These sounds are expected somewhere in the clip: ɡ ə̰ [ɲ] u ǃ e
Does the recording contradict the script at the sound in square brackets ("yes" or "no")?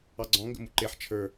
yes